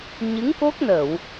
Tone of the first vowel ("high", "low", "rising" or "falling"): rising